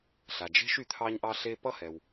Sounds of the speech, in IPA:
ɬa˩d͡ʒe̤˥ʃ y˩t̪ʰɑ˥ɲʔɑ˥ ɬe˥ pʌ˥hɛ˩w

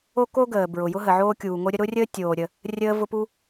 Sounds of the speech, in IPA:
o˥ko˥ɡəː˩ bɹʊ˩jʊ˥ɦə˩ ʕoː˥kʲuː˩ŋo˥ɾʲə˥ ɾʊ˥rʲəː˥tʲoː˩ɾʲə˩ | rʲəː˥vʊ˥pu˥

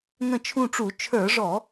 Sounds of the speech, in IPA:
ŋə̃˦˨t͡ʃʰũ˦˨ʈ͡ʂu˧˩˧ t͡ʃʰə˞˧˩˧ʐɔ˧˩˧

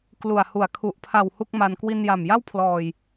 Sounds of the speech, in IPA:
klu˨˩a̯hu˨˩a̯ kʰu˨˩ʔpʰa˨˩w hu˥˩k̚ma˧n kwi˧nja˨˩mja˥˩wpʰlɔː˨˩j

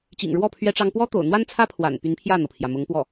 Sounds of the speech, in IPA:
t͡ɕḭ˨˩ŋɻwɔ˥˩ pʰɥɛ˥ʈ͡ʂɑ˥ŋ pwɔ˥t̪o̰˨˩ʊ̯n̪wa˥nt͡sʰä˥ pʰwa̰˨˩n py˧˥npʰjä˥˩n̪ɤ˩pʰjä˩ mʊ˧˥ŋpwɔ˥˩

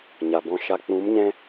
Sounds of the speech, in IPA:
ɲa˨bɔ̃˧ʃa˧ k͡pũ˨˦mɲɛ̃˧

